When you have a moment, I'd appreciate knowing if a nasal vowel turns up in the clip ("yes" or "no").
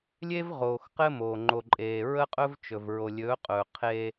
no